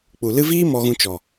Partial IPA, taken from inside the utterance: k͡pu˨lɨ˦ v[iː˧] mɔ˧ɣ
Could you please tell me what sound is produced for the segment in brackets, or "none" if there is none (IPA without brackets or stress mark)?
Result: iː˦